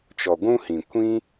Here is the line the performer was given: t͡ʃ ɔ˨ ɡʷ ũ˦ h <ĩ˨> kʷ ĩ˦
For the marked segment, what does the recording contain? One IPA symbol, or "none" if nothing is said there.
ĩ˨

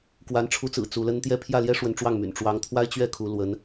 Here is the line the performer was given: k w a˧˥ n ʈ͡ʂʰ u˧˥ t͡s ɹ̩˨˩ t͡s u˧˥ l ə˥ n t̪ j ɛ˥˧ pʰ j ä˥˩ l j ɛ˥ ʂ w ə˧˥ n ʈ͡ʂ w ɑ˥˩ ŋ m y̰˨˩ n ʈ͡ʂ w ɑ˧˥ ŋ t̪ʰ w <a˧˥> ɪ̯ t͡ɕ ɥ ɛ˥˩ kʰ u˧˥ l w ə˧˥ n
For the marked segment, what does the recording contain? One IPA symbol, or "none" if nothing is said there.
a˥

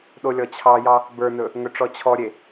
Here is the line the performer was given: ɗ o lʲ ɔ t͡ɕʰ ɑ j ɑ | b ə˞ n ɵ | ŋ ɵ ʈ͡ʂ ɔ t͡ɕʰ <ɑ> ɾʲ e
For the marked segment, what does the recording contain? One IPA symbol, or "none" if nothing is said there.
ɔ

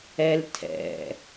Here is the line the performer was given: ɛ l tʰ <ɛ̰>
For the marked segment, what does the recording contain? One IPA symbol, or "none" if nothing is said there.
ɛ̰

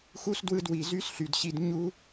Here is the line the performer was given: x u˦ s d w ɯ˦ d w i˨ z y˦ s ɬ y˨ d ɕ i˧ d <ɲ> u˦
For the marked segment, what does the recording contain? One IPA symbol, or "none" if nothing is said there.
ɲ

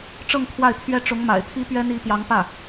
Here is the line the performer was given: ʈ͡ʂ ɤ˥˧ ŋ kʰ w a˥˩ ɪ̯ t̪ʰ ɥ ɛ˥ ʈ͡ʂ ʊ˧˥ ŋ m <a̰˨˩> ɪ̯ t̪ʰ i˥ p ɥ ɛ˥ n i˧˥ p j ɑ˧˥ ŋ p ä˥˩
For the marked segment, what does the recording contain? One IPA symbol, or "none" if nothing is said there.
a̰˨˩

